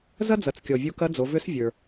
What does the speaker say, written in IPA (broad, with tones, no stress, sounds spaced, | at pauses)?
z ɐ˥ d͡z ɐ˩˧ t͡s kʲ ɔ˩ vʲ u˧ k ɐ˧˥ d͡z o˩˧ v ʏ˧˥ s vʲ ə˞˩